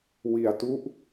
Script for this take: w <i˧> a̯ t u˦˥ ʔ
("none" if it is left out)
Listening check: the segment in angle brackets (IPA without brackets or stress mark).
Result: i˧